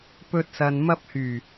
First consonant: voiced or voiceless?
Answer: voiceless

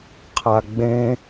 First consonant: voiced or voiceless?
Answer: voiceless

